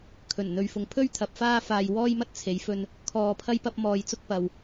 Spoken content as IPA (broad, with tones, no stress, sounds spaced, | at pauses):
kʰ ɵ˨˩ n n̪ ɵ˨ ɥ f ʊ˨ ŋ pʰ ɵ˥ ɥ t̪ʰ ɐ˨˥ p̚ f aː˥ f aː˧ j w ɔː˥ j m ɐ˥ t̚ t͡sʰ e˨˧ j f ɵ˧ n | kʰ ɔː˧ pʰ ɐ˥ j p ɐ˥ p̚ m ɔː˧ j t͡s ʊ˥ k̚ p ɐ˨ w